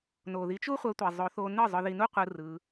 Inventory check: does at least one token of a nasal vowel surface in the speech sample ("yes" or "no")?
no